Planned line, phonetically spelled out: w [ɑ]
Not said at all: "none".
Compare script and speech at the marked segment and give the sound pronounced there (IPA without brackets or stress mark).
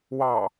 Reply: ɑ